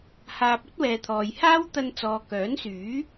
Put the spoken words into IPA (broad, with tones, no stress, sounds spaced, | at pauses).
h aː˧ p̚ ɵ˥ t̚ w ɛː˨ t̪ʰ ɔː˨ j h aː˥ w t̪ ɐ˧ n t͡s ɔː˨ k œː˨˥ n s yː˨˥